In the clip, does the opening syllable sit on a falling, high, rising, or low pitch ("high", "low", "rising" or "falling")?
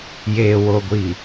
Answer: low